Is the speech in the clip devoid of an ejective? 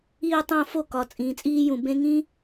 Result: no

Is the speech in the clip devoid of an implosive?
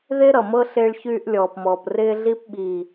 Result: no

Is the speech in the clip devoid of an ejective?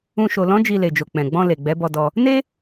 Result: yes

